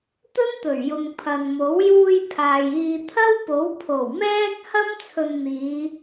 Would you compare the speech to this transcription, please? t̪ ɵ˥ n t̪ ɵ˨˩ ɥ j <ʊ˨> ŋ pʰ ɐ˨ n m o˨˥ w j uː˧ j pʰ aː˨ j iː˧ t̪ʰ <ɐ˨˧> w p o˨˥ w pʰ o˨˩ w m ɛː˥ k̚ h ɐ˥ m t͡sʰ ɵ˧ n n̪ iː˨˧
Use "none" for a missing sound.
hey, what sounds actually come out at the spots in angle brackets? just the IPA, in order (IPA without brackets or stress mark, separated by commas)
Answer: ʊ˨, ɐ˥